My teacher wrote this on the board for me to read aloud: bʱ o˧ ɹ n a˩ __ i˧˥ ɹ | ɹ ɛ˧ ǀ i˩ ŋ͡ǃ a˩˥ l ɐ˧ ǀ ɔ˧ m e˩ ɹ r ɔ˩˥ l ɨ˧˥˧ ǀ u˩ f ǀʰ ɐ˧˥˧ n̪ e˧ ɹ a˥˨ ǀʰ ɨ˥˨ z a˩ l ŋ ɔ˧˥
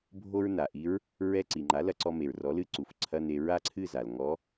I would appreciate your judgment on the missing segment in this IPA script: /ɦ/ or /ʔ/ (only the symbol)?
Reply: ʔ